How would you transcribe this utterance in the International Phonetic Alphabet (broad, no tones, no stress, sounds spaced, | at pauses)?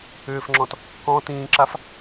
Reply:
ʏː f ŋ͡ǁ ɔ̃ t | k ɔ̃ t ĩː ǁ a f